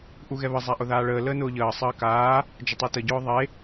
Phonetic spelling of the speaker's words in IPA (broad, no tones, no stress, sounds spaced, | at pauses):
ʔ u ɣ ɛ β ə zˤ a ʔ ʊ ð aː ɭ əː l əː n ʊː ʎ əː sˤ əː k aː | d͡ʒ ʊ tˤ i t ə ɟ ʊː ðˤ e